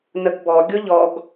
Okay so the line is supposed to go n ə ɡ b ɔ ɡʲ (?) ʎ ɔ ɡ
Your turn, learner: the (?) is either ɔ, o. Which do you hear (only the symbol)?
o